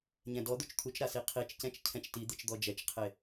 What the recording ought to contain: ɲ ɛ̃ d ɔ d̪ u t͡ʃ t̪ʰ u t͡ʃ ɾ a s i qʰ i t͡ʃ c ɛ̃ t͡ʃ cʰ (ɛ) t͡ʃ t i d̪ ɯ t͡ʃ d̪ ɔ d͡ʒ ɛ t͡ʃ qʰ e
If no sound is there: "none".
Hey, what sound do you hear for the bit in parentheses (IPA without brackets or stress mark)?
ɛ̃